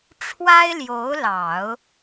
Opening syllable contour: high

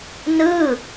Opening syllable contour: falling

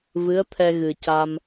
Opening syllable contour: rising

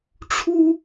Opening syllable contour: high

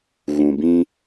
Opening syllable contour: low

